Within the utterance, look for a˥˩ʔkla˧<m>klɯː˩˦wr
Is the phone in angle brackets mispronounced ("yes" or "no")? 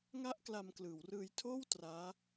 no